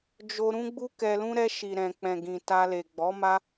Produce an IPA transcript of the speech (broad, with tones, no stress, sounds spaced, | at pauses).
d͡ʒ o˧ ɾ ũ˦ ɡ͡b u˦ k ɛ˧ l ũ˦ ɾ ɛ˧ ʃ i˨ ɾ ɛ̃˨ k͡p ɛ̃˨ ɡ ĩ˨ t a˧ l e˨ ɡ͡b ɔ˨˦ m a˦